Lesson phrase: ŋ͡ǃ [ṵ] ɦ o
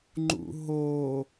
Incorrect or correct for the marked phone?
correct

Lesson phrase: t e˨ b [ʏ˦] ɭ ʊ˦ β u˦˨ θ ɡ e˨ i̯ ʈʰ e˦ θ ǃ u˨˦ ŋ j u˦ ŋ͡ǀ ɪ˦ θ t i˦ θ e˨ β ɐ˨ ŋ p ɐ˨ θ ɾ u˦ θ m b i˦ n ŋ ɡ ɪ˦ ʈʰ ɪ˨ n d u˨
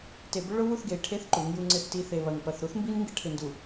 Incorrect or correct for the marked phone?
correct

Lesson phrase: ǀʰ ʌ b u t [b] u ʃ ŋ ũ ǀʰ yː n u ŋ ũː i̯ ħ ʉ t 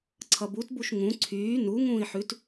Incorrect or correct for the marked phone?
correct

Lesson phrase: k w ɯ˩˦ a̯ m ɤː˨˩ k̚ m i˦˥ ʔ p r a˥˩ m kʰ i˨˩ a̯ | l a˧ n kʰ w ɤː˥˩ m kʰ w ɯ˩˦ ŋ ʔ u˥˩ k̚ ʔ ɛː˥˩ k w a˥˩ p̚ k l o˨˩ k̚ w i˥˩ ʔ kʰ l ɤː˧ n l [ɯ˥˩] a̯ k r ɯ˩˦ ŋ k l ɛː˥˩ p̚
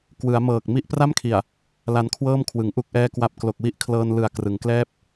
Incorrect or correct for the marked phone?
incorrect: ɯ˨˩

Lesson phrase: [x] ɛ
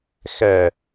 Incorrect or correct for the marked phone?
correct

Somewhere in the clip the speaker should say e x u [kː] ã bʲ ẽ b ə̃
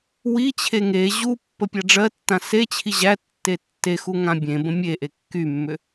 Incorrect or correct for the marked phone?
incorrect: ŋ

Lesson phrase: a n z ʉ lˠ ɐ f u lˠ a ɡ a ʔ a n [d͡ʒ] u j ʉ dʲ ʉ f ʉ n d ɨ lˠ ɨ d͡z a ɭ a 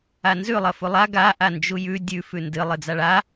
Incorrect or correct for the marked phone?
correct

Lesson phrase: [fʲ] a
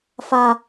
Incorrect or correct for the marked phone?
incorrect: f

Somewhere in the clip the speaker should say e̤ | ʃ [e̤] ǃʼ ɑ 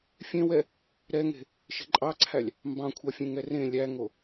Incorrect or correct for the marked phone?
correct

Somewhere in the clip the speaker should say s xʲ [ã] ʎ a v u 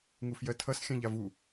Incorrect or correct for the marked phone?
correct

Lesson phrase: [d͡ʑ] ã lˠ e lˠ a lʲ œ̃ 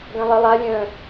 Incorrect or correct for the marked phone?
incorrect: ɡ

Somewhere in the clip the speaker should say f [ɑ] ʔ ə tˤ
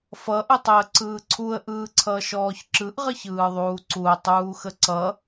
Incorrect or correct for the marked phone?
incorrect: ʌ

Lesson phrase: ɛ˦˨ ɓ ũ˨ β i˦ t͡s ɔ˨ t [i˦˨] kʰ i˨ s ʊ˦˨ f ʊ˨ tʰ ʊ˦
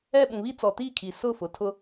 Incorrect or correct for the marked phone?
correct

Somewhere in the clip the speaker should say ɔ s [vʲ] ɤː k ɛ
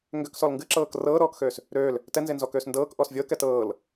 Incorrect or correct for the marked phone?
correct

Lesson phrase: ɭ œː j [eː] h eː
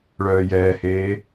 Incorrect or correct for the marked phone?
incorrect: ɛː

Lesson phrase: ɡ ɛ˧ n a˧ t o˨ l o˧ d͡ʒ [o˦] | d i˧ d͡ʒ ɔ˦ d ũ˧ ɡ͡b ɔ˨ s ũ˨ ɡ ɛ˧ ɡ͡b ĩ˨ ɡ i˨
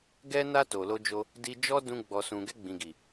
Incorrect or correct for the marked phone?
incorrect: o˧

